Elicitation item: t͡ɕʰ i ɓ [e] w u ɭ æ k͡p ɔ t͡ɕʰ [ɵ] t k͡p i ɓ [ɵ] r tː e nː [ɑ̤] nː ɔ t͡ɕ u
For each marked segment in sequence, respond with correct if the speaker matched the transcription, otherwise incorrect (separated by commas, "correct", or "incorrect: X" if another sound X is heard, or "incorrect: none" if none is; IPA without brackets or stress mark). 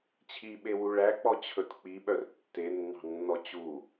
correct, correct, incorrect: œ, correct